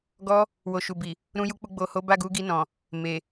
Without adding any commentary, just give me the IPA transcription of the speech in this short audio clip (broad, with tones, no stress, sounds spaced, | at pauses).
ɡ ɔ˧ | w o˨ ʃ u˨ b i˨ | ɾ ũ˧ j u˧ k͡p u˧ ɡ͡b o˨ h o˨˦ b a˦˨ ɡ u˨˦ ɡ i˧ n ɔ̃˨ | m e˨